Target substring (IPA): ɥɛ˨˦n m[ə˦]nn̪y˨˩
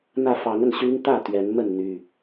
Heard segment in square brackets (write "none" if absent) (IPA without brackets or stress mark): ə˥˨